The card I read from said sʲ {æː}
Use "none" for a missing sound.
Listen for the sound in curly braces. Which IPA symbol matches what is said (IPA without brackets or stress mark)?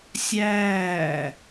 æː